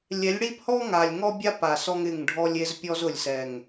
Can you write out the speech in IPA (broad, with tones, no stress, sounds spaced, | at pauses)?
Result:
lʲ ɛ˨˦ lʲ ɽ i˦ p h ɔ˦ ŋ a˨ lʲ ŋ ɔ˦ bʲ a˦ p a˨ s ɔ˦ ŋ ɪ˦˨ ŋ ɖʱ ɔ˦ lʲ e˦ z pʲ ɔ˦ z ʊ˨ lʲ s ɛ˨ ŋ